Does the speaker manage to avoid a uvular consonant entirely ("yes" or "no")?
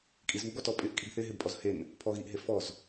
yes